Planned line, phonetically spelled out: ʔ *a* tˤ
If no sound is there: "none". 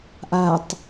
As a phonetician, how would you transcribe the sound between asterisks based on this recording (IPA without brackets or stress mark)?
a